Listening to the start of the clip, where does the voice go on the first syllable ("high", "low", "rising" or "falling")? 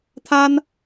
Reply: high